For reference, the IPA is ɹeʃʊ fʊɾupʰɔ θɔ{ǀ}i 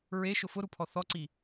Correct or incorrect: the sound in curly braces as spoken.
correct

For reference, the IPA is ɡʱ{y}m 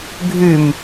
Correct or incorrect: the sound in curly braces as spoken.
correct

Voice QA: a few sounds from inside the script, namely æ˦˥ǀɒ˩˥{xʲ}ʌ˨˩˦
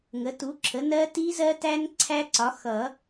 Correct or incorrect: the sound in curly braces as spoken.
incorrect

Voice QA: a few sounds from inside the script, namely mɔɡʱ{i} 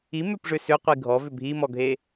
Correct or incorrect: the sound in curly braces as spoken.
incorrect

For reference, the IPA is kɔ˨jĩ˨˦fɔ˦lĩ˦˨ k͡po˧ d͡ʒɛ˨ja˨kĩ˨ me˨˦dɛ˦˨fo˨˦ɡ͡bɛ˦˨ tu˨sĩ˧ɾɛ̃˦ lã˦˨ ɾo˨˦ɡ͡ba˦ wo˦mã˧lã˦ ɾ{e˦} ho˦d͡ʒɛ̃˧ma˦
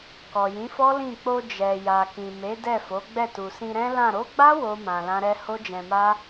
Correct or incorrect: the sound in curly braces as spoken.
incorrect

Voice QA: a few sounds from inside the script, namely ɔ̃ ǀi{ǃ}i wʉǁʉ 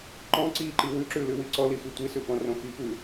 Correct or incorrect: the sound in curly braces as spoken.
correct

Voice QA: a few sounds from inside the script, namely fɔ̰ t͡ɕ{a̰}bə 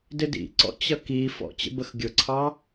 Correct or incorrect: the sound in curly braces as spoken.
incorrect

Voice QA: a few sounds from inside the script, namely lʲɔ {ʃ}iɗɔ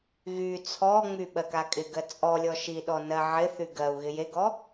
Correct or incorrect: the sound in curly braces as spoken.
correct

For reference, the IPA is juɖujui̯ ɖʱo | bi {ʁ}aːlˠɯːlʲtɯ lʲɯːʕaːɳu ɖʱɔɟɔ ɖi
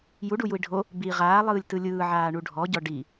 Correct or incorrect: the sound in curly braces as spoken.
correct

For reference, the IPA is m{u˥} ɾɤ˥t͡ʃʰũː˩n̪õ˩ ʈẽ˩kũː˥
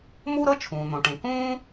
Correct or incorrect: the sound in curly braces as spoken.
correct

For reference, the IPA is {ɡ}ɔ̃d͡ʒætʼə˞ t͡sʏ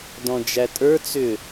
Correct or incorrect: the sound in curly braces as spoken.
incorrect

